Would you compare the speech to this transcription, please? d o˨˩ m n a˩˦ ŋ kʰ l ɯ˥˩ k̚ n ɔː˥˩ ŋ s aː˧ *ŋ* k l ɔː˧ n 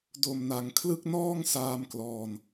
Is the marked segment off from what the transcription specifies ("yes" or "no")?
yes